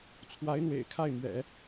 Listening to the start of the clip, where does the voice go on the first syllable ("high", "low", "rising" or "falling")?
rising